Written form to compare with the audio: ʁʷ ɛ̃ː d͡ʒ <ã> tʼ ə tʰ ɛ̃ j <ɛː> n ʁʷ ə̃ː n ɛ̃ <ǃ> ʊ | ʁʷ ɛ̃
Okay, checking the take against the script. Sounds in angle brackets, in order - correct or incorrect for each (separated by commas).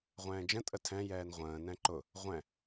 incorrect, correct, correct